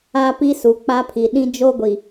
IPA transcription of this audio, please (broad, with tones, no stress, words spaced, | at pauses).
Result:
a˦pi˦ su˨k͡pa˦pʰi˨ ɗĩ˦d͡ʒo˦ɡʷi˨